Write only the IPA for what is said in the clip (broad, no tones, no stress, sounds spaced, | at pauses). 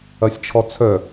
ɐ sʲ t͡ʃʰ ɔ t͡sʰ œ